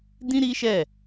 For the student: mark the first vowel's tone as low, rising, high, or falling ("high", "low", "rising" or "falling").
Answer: high